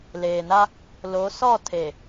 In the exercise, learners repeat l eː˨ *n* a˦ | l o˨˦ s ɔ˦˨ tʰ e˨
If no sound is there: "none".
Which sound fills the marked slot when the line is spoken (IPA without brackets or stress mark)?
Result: n